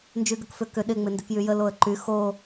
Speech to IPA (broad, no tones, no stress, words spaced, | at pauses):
nd͡ʒyɡəkfʏ kʏ ɗɪ ŋ͡mɪndʏkjyjə loə̯ǃy xo